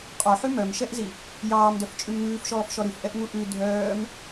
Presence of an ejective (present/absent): present